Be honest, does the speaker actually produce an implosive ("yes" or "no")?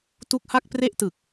no